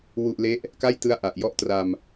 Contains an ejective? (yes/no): no